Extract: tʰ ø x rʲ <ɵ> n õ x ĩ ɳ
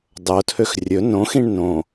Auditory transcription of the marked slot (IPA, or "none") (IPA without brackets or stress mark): ɵ